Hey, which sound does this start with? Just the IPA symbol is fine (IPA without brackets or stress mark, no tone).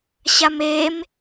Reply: ɕ